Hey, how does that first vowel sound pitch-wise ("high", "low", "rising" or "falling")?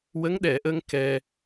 rising